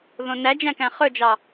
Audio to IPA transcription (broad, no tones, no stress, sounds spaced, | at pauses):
ð õ n æ d͡ʒ æ̃ k æ̃ χ ɵ d͡ʒ ɑ